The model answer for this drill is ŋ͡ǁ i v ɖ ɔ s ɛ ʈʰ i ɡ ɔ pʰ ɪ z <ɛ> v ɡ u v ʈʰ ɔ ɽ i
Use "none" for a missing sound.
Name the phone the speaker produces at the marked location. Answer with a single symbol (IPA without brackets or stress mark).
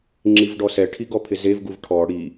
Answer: e